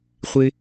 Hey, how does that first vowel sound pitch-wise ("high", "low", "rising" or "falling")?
high